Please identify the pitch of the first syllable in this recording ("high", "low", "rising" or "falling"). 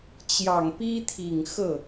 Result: low